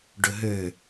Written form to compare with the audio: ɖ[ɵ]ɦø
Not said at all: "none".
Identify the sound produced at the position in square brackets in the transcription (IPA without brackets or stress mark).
ɵ